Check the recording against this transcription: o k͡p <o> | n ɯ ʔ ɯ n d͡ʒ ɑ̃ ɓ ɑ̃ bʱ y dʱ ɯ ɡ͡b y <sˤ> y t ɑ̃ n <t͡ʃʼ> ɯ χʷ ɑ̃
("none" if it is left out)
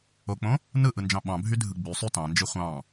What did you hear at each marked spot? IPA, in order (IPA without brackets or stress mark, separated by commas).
õ, sˤ, d͡ʒ